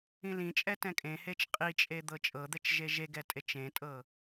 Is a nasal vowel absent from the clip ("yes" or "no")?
no